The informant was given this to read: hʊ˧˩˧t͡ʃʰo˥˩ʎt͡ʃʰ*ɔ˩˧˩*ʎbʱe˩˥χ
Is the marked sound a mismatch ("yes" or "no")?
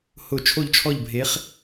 yes